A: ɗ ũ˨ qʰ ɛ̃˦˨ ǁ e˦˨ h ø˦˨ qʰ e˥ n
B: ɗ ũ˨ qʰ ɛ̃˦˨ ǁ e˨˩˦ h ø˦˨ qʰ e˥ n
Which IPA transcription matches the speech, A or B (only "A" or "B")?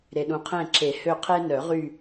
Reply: B